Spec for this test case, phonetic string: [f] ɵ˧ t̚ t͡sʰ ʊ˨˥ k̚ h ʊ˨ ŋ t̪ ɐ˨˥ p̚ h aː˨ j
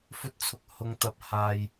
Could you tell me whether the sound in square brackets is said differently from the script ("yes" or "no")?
no